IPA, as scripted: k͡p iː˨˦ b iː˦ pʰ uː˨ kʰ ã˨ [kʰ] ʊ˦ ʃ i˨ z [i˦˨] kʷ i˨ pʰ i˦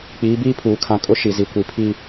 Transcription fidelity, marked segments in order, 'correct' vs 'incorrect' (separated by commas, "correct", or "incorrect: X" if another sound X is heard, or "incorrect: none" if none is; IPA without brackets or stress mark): incorrect: kʼ, incorrect: i˨